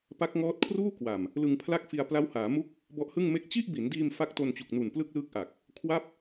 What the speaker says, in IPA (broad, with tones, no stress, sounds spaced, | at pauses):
p a˦˥ k̚ ŋ ɔː˦˥ t̚ kʰ r uː˥˩ k w a˨˩ m | l ɯ˧ ŋ pʰ l a˥˩ k̚ f i˧ a̯ p l a˦˥ w h aː˩˦ m u˥˩ k̚ | b ɔ˦˥ ʔ h ɯ˥˩ ŋ m e˥˩ k̚ t͡ɕ i˥˩ ʔ b i˩˦ n d iː˧ m f a˦˥ k̚ t o˧ n t͡ɕ u˨˩ k̚ n u˨˩ n p l ɯ˥˩ k̚ l ɯː˦˥ k̚ ʔ a˨˩ k̚ | kʰ w a˥˩ p̚